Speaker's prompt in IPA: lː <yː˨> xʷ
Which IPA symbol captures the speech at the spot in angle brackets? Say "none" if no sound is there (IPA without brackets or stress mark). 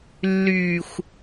yː˨